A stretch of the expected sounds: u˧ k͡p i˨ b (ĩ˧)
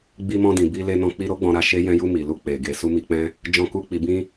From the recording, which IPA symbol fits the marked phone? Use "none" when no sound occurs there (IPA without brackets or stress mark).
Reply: ĩ˧